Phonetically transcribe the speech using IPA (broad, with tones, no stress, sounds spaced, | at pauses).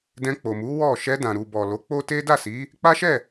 d ɛ̃˧ k͡p o˨ m u˨˦ w ɔ˦˨ ʃ ɛ˧ d ã˨ ɾ u˨ b ɔ˨ l o˨˦ k͡p o˦ t e˦ d a˦˨ s i˨˦ | k͡p a˦ ʃ ɛ˦˨